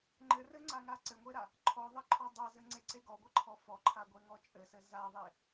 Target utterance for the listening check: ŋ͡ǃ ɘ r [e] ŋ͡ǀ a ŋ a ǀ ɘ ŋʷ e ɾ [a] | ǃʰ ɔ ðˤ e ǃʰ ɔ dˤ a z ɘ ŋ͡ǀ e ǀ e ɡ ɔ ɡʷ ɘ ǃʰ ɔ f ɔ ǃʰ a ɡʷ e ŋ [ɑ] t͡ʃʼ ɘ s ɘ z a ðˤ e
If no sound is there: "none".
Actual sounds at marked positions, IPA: ɘ, a, ɔ

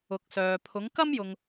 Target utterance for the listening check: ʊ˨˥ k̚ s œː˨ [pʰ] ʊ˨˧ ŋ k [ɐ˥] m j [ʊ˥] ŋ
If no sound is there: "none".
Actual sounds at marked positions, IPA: pʰ, ɐ˥, ʊ˨

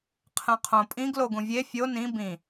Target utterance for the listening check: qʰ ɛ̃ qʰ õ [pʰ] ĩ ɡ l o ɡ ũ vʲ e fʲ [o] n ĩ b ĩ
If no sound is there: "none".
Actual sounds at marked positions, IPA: pʼ, o

